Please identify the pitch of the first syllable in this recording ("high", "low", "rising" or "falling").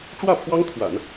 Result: falling